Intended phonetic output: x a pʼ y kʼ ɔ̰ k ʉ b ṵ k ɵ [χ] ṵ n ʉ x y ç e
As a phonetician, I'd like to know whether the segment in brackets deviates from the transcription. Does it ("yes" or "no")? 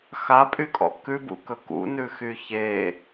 yes